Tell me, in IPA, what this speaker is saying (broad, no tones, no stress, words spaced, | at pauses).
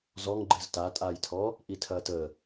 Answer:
zɔŋɡ͡ǃɨz tatʼaːjtʰɔː | ʔitʰɐːtəː